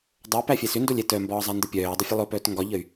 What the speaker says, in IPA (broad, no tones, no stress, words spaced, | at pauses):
dˤəy̯ pæfʲɛsʏndolʲ ɛtœmbɒː zˤandəpʲœːdˤʏ fʲəlˠopœːt ŋɡɒʎəy̯